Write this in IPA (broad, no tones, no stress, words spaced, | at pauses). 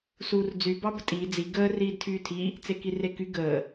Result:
suːrd͡zy bɑbətʼiː d͡zi ɡəː riːdtʰyːtʰi | t͡sekireky ɡəː